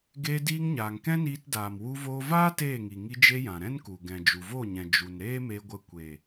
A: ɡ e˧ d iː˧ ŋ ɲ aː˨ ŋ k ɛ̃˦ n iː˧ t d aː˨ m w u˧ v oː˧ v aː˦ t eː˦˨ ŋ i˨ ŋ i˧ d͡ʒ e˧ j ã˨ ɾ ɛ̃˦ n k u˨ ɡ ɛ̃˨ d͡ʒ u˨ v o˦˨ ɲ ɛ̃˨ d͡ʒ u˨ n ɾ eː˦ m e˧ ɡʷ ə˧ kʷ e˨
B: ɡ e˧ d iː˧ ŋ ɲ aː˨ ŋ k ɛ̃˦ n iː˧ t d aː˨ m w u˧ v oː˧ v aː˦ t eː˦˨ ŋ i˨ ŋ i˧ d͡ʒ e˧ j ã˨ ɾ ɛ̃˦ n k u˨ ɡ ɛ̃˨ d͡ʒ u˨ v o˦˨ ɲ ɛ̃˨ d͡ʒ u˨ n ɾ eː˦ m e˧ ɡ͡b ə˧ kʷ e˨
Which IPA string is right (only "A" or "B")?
A